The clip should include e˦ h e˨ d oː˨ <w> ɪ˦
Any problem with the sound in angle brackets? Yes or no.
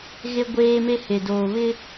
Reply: yes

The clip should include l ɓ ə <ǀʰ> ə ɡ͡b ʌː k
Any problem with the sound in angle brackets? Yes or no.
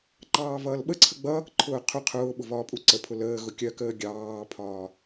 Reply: no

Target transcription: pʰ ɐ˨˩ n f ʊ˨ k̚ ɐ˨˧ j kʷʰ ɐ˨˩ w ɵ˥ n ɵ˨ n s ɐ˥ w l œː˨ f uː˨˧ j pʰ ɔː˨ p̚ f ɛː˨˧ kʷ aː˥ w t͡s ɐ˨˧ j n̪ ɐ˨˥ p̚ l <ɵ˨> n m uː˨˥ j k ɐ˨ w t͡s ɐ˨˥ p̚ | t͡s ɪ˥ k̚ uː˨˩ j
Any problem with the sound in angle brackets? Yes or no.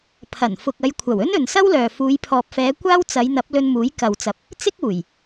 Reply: yes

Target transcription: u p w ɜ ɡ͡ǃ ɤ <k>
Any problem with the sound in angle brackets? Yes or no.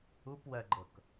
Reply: no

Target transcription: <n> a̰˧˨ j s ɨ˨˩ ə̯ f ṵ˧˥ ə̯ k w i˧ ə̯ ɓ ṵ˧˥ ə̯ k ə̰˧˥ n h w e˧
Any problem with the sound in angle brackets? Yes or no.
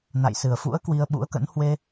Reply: no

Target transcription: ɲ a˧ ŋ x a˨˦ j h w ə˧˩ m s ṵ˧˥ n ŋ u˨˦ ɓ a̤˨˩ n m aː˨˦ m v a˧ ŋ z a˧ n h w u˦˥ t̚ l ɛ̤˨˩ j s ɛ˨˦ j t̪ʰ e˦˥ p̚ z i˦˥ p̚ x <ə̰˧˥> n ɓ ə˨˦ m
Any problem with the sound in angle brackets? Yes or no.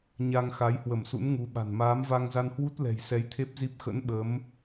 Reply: no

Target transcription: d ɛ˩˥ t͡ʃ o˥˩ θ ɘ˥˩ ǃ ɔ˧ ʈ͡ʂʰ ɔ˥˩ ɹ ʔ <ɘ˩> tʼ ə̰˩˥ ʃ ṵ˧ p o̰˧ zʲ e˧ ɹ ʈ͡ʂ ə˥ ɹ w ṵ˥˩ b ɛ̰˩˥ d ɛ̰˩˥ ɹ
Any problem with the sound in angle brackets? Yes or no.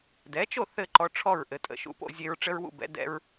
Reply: no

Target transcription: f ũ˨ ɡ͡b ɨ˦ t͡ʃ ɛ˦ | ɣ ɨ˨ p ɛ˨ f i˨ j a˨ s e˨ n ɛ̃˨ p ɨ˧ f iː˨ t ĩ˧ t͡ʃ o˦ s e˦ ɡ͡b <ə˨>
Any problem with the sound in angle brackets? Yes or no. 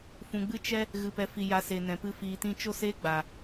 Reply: yes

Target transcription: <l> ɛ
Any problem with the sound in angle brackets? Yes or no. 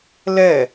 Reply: no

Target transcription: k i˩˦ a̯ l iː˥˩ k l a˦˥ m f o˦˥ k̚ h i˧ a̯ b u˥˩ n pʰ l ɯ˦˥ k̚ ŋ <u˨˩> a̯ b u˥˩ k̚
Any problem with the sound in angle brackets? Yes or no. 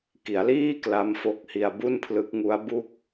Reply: yes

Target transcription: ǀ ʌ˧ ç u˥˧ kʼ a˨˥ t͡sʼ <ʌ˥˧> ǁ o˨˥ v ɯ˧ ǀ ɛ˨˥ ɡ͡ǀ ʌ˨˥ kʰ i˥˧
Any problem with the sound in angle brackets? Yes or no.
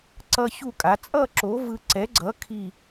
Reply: no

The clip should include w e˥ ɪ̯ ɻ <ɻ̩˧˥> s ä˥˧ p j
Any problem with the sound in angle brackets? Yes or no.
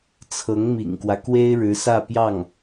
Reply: no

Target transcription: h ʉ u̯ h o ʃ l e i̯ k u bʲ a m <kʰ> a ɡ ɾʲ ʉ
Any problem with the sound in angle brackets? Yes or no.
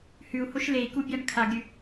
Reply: no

